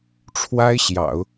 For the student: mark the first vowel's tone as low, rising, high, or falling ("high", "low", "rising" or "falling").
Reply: high